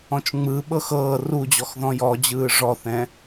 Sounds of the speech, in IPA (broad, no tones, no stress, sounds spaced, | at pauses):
ɔ̃ t͡ʃ ŋ͡m ɯ ɓ ɤ x ɤː r u d͡ʑ ɔ x ð ɔ̃ j ɔ d͡ʑ ɯː ʐ ɔ θ ɛ̃